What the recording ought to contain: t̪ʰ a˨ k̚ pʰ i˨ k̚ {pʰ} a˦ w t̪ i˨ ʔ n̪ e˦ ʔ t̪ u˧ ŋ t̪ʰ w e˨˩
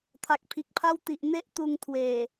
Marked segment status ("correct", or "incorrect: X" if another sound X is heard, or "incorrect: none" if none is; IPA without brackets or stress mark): correct